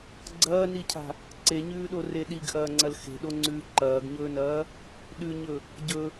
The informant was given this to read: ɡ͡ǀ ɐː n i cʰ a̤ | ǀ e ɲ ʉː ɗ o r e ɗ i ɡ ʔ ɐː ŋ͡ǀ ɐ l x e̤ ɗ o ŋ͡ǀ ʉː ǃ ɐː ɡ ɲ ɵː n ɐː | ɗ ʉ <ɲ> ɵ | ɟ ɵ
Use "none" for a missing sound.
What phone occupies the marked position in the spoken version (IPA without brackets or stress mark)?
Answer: ɲ